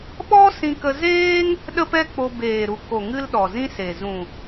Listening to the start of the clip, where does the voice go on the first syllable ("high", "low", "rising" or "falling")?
high